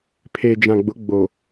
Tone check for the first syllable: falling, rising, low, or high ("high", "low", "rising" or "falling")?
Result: low